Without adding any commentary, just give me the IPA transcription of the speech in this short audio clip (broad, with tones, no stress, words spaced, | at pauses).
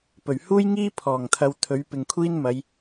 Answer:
pɵ˨˩ɥhuː˥jŋiː˥ pʰɔː˨˩ŋt̪ʰɐ˨˧w t̪ʰɵ˨˥ɥpɪ˨ŋkʷʰiː˥n mɐ˨˧j